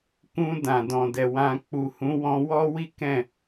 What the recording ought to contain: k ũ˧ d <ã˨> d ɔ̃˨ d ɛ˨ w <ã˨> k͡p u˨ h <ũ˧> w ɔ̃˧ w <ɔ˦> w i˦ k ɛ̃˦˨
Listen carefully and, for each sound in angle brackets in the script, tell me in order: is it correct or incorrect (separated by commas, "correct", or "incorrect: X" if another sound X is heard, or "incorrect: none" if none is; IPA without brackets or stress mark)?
correct, incorrect: ã˧, incorrect: ũ˨˦, correct